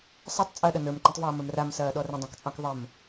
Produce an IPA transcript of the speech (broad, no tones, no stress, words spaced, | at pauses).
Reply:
sˤɑtˤt͡sʼɐːɗɐ nə˞mǃĩtˤvɔːmə˞m ramsɐːɗɔ rə̃dˤɐ̃kt͡sʼɑ̃k ðˤəm